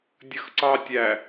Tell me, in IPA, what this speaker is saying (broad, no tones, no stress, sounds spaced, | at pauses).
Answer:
dʲ ə x ǀ ɑ tʲ æ